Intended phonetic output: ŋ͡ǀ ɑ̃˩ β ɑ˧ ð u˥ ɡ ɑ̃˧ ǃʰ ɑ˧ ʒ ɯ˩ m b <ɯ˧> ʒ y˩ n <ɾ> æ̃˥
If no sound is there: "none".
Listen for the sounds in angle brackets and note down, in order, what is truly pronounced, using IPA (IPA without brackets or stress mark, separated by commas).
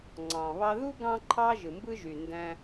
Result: ɯ˥, d